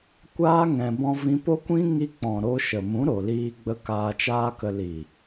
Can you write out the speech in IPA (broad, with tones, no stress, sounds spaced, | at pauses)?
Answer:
kʷ aː˦ ŋ ɛ̃˧ b ɔ̃˦ v ĩ˧ p o˦ kʷ ĩ˦ ŋ i˧ k͡p ɔ̃˨ ɾ o˧ ʃ ə˨ m ũ˨˦ ɾ o˨ l iː˧ ɡ͡b ə˧ k aː˧ t͡ʃ aː˦ k ə˧ l i˨